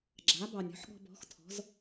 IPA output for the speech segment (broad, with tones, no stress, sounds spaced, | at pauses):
ɡ͡ǁ a˩˥ b ɑ˩ nʲ ɔ̤˩˥ ħ ɠ ɔ̤˧ b ɔ̤˩˥ x tʰ ɔ̤˩˥ z